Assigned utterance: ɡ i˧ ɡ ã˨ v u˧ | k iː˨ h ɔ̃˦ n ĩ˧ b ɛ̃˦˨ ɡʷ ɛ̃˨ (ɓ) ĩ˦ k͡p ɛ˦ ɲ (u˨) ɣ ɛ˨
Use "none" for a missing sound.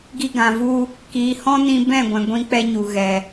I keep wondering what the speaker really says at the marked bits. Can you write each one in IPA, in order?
ɡʷ, u˨

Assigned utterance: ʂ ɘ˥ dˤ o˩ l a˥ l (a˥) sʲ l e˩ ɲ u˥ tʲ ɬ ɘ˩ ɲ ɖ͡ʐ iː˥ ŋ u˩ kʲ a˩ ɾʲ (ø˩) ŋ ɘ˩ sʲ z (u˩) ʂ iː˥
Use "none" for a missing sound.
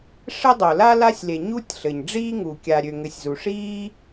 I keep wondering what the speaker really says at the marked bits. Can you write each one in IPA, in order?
a˥, ø˩, u˩

